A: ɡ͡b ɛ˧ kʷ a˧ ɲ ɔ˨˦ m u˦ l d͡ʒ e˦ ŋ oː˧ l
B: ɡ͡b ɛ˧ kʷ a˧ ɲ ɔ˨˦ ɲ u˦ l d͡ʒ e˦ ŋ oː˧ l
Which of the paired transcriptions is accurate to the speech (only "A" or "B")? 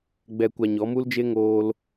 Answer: A